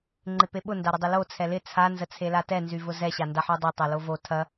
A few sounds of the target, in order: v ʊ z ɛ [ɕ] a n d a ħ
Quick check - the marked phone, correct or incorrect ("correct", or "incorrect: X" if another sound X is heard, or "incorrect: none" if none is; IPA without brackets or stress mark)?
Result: correct